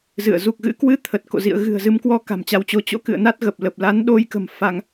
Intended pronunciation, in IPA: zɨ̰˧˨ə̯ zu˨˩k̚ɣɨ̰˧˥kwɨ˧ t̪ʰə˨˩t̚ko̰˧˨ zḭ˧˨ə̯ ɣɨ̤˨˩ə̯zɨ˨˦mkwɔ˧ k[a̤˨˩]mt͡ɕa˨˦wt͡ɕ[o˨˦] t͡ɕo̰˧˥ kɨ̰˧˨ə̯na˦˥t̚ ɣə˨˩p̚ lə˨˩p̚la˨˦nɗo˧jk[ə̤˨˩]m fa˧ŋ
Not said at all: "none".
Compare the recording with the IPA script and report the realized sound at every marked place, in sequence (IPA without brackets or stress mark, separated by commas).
a̤˨˩, o˨˦, ə̤˨˩